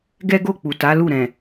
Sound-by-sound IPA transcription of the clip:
ɡ ɛ˦ ɡ o˦˨ k͡p u˨ t a˨˦ l u˦˨ ɾ ɛ̃˨

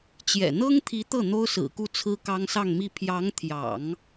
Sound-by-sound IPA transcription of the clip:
t͡ɕ j ɛ̰˨˩ n̪ ɤ˥ ŋ t̪ʰ i˧˥ t̪ ɤ˥˩ n̪ o˥ ʊ̯ s ɹ̩˨˩ k u˥˩ t͡sʰ ɹ̩˥ k ɑ˥ ŋ s ɑ˥˧ ŋ m i˥˩ pʰ j ɑ˧˥ ŋ t̪ʰ j ɑ̰˨˩˦ ŋ

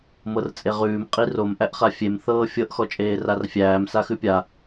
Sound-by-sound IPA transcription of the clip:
m ɤ r t͡sʼ e ʁ ʉː m qʼ i r o m ʔ æ ʔ χ a fʲ e m θ ɤː fʲ ɤ ʔ x ɔ t͡ʃʼ eː r a r fʲ æː m s a x ʉ pʲ a

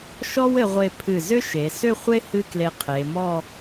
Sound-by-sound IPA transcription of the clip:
ʃ ɔ˥ w ɘ˧ ʁʷ e˧ pʰ ɨ˧˩ z ʏ˥ ʃ e˩˧ s ʏ˥˧ χʷ e˥ h ɨ˥ k l e˧ qʰ e˩˧ m ɔ˥˧

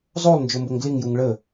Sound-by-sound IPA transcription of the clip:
zˤ o lˠ n d͡ʒ o m b o ŋ ɡ l i ŋ j u ŋ ɭ ə

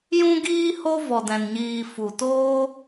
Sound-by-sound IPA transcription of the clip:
j ũ˦ ɡ iː˦ h o˦ v ɔ˧ d ɛ̃˧ n ɲ iː˧ f u˨ t oː˦

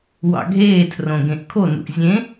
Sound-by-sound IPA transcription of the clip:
w ɑ̰ ɡʱ eː tʰ r õ ɡ ẽ ʔ kʰ o n ṵ ʔ zʲ ẽ

